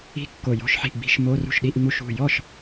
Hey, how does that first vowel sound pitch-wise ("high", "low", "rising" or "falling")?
falling